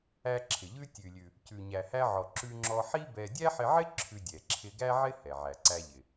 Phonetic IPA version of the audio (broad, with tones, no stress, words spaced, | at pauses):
æ˧ǁʰɪ˩ ʎʉ˧tʲʉ˩lʲʉ˩ | cʉ˩ɲæ˩hæ˧ʕɔ˩ ǁʉ˧ŋ͡ǁɔ˧ ħi˥bɛ˧ dʲæ˥ħɪ˧ʕɪ˥ ǁʰʉ˧dʲɛ˩ ǁʰɪ˧ɡæ˥ʕɪ˥ hɛ˩ʕæ˩ǀæ˧ʎɪ˩